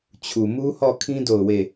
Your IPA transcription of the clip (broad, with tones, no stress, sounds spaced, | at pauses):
t͡ɕʰ u˨ m u˦ h ɔ˦˨ kʰ ĩ˦ d o˦˨ ʊ̯ w e˦˨